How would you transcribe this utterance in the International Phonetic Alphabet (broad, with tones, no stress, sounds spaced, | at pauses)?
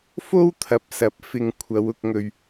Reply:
f o˥ w t̪ʰ ɐ˨ p̚ s ɐ˨˥ p̚ f ɪ˧ ŋ kʷʰ ɐ˨˧ w ʊ˧ k̚ ŋ ɵ˧ ɥ